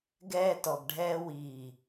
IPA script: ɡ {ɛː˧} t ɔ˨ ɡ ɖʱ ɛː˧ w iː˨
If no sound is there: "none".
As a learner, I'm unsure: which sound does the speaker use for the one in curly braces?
ɛː˧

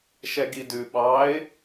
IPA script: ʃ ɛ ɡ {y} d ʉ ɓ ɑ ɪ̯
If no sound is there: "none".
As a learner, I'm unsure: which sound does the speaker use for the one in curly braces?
i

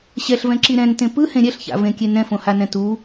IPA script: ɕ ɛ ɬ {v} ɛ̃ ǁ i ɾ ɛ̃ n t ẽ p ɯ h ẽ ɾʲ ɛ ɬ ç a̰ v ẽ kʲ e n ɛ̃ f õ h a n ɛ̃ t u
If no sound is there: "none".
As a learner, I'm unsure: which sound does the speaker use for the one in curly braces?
v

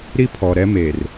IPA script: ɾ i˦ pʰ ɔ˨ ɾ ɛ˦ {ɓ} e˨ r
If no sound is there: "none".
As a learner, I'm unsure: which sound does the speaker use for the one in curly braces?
m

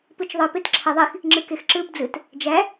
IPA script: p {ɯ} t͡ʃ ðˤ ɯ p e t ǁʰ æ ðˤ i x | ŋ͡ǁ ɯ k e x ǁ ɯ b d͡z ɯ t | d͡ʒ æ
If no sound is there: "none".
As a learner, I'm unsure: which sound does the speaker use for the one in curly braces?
ɯ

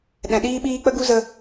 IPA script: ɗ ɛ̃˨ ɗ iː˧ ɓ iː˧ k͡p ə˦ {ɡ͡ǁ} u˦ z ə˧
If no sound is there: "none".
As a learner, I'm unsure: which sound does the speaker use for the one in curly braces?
ɡ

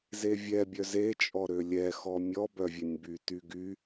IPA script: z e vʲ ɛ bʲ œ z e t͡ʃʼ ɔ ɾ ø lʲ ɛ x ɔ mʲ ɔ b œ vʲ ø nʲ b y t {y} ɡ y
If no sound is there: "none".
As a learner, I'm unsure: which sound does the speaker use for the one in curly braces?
y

